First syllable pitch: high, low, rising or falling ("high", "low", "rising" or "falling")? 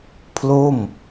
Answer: falling